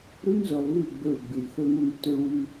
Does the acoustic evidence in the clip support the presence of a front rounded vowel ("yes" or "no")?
yes